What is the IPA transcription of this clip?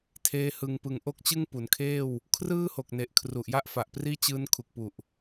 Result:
tʰeː˦˥hɯ˧ŋpɯ˧ŋ ʔo˥˩k̚t͡ɕɯ˥˩ŋpu˩˦nkʰeː˥˩w | kʰrɯː˥˩ho˨˩k̚ne˨˩ʔ kʰru˨˩ʔja˥˩ʔfa˨˩ʔpriː˥˩ t͡ɕɯː˦˥nkʰu˨˩k̚pu˨˩ʔ

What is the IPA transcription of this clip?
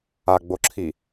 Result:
aɡ͡boǁʰi

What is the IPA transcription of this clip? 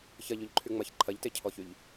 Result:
çɐʎɵʎǃʰy ŋ͡mɐç ǃʰɐʎtecʰɔçyʎ

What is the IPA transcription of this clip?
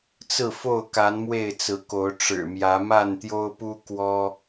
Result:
t͡sɹ̩˥˨fo˥˨ʊ̯ka˨˦n mwe˥˨ɪ̯t͡sɹ̩˨˦ko˨˦ʊ̯ ʈ͡ʂɻ̩˨˩mjä˨˦ ma˥˨nt̪jo˦ʊ̯pu˦ kwɔ˦

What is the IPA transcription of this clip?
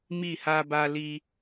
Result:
mi˦˨ha˦ba˦ li˦

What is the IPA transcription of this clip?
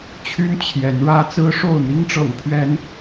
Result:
t͡ɕʰy˦n t͡ɕʰjɛ˨˦nɻä˦ t͡sɹ̩˦ʂo˥˨ʊ̯ n̪i˦ŋʈ͡ʂɤ̰˨˩ŋpʰɥɛ˨˦n

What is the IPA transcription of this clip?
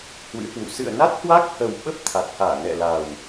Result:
hwɨ̰˧˥hwṵ˧˨ sɨ̰˧˨ə̯na˦˥t̚hwa˦˥k̚ hə˨˩wɓə˦˥p̚ t̪ʰa˨˩t̚haː˧˩nɛ̰˧˨ la˨˩w

